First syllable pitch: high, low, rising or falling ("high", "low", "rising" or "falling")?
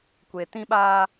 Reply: low